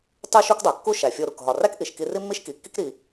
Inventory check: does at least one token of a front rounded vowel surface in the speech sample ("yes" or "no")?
no